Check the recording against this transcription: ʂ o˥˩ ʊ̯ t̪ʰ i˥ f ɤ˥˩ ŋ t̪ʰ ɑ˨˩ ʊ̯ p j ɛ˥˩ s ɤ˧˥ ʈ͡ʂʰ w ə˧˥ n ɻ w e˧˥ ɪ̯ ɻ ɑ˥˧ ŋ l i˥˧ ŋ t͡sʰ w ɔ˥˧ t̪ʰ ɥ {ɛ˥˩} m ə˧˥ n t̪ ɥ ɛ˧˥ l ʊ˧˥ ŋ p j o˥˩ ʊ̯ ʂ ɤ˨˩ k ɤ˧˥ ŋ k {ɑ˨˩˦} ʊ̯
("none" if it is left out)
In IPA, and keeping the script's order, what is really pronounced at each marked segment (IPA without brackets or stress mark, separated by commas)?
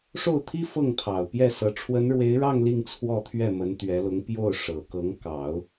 ɛ˥˩, ɑ˨˩˦